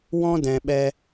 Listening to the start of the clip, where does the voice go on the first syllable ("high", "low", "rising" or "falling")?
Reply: high